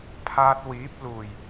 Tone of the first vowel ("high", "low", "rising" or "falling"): high